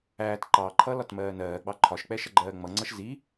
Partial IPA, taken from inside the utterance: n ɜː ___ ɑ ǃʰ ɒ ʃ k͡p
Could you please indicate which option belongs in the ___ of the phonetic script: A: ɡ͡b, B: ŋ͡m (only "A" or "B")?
A